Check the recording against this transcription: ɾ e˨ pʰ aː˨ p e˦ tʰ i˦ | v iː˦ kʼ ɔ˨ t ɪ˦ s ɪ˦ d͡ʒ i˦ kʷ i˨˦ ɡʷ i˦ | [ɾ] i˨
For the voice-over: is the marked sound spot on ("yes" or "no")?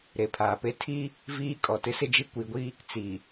no